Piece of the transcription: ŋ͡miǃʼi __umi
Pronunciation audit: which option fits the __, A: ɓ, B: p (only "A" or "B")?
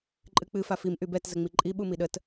A